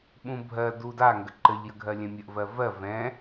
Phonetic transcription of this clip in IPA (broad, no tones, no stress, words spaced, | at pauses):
ɓũbʱɜ duda ŋɡəǃɘʎ jəɡʱɜlʲɛ̃mʲəʔ vɜvɜ vɛ̃